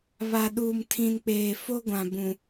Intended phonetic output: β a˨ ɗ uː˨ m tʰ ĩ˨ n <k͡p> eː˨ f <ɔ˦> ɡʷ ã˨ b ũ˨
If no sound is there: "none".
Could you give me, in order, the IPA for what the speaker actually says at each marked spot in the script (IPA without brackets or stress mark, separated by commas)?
k͡p, o˦